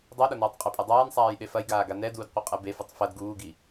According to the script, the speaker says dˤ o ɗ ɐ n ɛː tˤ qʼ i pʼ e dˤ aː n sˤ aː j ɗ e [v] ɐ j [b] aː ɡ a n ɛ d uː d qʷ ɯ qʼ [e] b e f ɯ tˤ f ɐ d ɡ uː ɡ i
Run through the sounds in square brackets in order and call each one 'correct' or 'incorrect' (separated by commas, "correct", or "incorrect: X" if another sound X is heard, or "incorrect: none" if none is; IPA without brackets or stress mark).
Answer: incorrect: f, incorrect: ɡ, incorrect: ɛ